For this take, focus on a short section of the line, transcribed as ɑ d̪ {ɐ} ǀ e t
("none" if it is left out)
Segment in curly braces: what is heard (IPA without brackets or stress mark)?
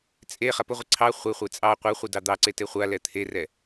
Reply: ɑ